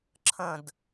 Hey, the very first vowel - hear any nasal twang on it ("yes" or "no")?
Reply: yes